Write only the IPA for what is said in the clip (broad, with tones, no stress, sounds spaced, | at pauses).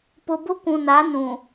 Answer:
p ʊ˨ b ʊ˦ kʷ ũ˨ n a˨˦ n ũ˨